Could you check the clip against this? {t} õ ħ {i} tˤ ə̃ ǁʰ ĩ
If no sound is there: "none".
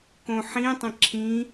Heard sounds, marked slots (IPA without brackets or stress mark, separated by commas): k, ĩ